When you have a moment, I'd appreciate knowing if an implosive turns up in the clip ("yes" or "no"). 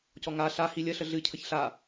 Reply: no